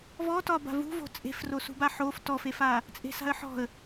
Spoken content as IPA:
v ɔ t ɒ b a̤ v ṳ v o̤ t͡sʼ e̤ f r o s ṳ b a ħ o f t ɔ f e f a | t͡sʼ e̤ s a̤ ə̯ ħ ɔ̤ ə̯

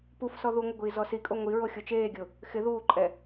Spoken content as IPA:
p u f s ɔ ð u ŋʷ ɪ ɡʷ iː z ɔ s i kʼ o ŋʷ i ɹ o xʲ o t͡ʃ eː ɡʲ ʊ | x ɪ ð uː ǃʼ ɛ

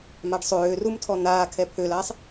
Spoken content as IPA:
m a ɖ sˤ øː r u m tʰ ɔ n̪ aː kʰ ɛ pʰ ø l aː sˤ

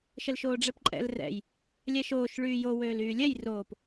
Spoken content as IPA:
ʃ ə l ʃ oː ɖ͡ʐ ɛ p ǃʼ ɛ̰ l r ɛ̰ j | lʲ ɛ ʃ oː ʃ ɭ yː j o w øː l yː lʲ ɛ j r oː p

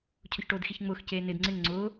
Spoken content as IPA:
cʰ ʊ ç ʈ oː d x i ç ŋ͡m ʊː x c eː n ɪ d ŋ͡ǀ ɪ ŋ ŋ͡ǀ ʊː

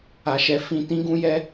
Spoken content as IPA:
a˧ ʃ ɛ˧ f ĩ˧ t ĩ˦ ɡ ũ˦ j ɛ˦

